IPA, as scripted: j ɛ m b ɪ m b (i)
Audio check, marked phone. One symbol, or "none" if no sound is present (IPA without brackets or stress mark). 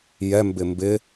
ɪ